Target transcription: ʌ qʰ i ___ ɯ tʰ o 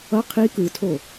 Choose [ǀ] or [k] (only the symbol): k